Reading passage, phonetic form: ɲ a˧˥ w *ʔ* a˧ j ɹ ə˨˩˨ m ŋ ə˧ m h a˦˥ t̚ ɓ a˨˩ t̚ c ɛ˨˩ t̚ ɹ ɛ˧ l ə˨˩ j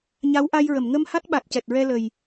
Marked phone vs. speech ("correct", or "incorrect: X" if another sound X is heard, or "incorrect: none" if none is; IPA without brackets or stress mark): correct